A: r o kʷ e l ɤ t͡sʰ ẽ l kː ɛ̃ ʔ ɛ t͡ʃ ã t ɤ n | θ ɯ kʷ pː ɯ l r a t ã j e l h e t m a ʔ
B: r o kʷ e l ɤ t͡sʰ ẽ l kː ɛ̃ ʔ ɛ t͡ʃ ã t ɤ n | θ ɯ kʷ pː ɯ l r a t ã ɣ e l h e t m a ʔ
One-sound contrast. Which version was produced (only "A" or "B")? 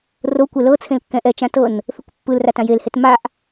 A